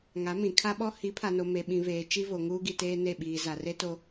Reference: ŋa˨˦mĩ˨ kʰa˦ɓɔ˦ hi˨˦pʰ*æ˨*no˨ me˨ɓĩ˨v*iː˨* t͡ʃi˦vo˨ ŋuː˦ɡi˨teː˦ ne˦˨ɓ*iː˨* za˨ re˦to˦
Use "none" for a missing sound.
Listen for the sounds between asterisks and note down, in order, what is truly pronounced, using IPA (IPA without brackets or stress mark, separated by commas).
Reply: a˨, eː˨, iː˨